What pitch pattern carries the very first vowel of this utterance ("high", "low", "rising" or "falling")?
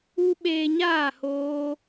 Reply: high